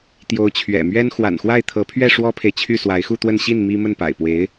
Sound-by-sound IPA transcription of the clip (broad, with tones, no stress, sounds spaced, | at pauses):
t̪ j o˧˥ ʊ̯ t͡ɕʰ ɥ ɛ̰˨˩ m ɥ ɛ˥ n x w a̰˨˩ n x w a˥˩ ɪ̯ t̪ʰ ɤ˧˥ pʰ ɥ ɛ˥˩ ʂ w ɔ˥ pʰ e˨ ɪ̯ t͡ɕʰ y˥˩ s w a˧˥ ɪ̯ x u˥˧ t̪ w ə˥˧ n ɕ i˥˩ n m i˥ m ə˥˩ n p a̰˨˩ ɪ̯ p w e˧˥ ɪ̯